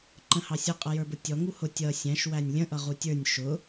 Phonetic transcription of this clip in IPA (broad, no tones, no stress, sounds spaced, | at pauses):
ǃ ə̃ h ɑ sʲ ʌ qʼ ʌ j ə˞ b ʊ tʲ ɔ ŋ u h ʊ tʲ ʌ sʲ æ̃ ʃ w æ nʲ lʲ ə̃ ʔ ʌ ʁ u tʲ ə˞ nʲ ʃ ʊ